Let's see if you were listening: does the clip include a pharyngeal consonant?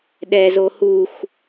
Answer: no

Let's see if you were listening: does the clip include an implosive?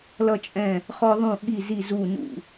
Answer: yes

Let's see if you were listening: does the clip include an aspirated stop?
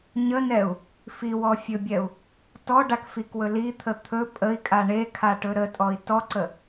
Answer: yes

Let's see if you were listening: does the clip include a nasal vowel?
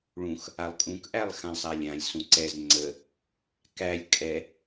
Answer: yes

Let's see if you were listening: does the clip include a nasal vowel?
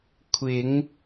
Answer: no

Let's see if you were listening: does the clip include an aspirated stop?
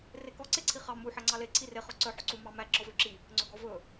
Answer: yes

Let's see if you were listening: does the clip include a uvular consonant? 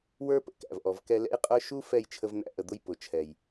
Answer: yes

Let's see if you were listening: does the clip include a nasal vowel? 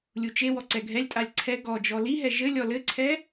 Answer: no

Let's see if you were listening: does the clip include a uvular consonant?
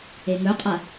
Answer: yes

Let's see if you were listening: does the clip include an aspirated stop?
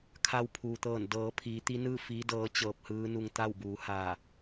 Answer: yes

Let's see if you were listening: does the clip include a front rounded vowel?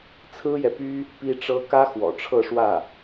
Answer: yes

